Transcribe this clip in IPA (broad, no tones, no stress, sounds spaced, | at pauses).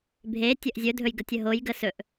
bʱ e tʲ ə ʔ zʲ ɵ dʱ ɵ j ɡ ə tʲ ə ɦ o j ɡ ə s ɵ ʔ